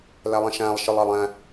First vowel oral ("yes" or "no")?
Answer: yes